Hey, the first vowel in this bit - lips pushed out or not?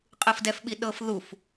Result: no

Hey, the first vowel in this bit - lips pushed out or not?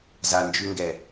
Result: no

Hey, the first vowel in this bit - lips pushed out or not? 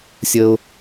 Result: no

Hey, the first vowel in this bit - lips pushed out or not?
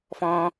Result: yes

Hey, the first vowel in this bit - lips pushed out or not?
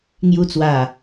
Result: yes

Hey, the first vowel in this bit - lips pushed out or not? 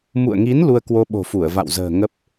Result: yes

